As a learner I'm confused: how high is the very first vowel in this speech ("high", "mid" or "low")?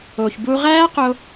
mid